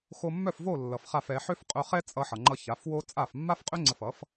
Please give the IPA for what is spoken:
xo˧mːœ˥˩f vo˥˩lːʌ˩f χa˥˩fɛ˩˥ ħø˥fqʼœ˧χɛ˥ t͡sʼʌ˧ħʌ˩ŋ͡ǃʌ˧ ça˩˥fwo˥ t͡sʼa˥˩f mːa˥fqʼø˥ ŋ͡ǀə˧fʌ˩˥f

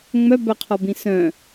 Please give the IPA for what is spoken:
ŋ͡mœbœqʰɔbĩ sœ̃

